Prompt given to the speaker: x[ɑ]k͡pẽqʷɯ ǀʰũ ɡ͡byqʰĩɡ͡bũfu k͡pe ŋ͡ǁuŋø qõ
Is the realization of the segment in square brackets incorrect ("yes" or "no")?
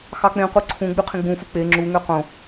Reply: no